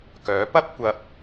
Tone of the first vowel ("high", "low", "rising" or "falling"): rising